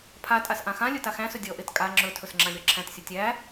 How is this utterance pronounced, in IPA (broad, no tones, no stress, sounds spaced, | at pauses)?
pʰ a tʼ a s ʔ ã x ã lʲ ɵ t a x æ̃ s ɵ dʲ ɔ ʔ e t kʼ a ŋ͡ǁ ɵ tʰ ɵ s ŋ͡ǁ ã lʲ ɔ ǁʰ æ̃ t sʲ ɵ tʲ æ